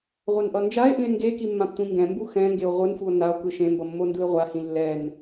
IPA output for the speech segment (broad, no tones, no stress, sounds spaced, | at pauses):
ʁʷ a n ʔ ʌ n d͡ʒ a e̯ ʔ ĩ e̯ ŋ ɡ e k i mː ã p tʷ ĩ ŋ ɡ ɛ̃ m b u x ɛ̃ ŋ ɡ e o̯ ʁʷ ɯ n f u o̯ n a o̯ k ɯ ʃ ẽ m b ʌ mː o n d ɯ e̯ ʁʷ a h ĩ lː ɛ n